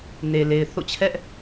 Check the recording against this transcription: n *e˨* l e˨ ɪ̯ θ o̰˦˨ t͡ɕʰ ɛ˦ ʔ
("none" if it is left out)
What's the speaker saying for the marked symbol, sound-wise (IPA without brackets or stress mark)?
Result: e˨